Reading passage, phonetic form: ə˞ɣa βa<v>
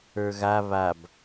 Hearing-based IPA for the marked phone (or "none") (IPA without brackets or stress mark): b